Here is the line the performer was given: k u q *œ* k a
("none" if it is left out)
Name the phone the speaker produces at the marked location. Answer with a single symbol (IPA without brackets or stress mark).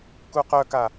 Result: œ